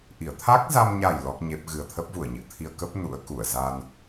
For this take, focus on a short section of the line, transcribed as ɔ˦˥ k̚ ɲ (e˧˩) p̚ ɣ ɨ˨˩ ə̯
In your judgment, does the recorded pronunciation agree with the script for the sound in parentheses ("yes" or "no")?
no